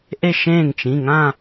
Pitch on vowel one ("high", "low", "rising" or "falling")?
falling